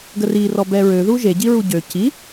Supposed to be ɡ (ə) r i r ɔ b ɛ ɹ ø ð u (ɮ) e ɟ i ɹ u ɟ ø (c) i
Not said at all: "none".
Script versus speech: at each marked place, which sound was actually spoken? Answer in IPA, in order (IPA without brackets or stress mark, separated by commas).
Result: ə, ʒ, c